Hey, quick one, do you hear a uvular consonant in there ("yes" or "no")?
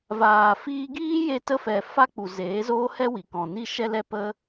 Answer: no